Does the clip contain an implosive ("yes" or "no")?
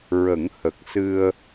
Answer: no